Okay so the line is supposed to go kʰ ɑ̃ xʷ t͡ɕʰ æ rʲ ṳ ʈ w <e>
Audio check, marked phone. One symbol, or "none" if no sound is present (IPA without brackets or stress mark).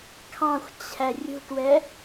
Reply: ɛ